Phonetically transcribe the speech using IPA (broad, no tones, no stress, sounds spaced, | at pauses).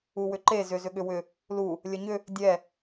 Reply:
u w ʏ ǃ e z ʏ z ʏ ɠ ʏ w ʏ | l u | lʲ ə ɲ ʏ | dʲ ɛ